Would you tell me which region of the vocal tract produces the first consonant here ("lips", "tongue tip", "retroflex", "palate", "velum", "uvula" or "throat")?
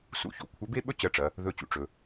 tongue tip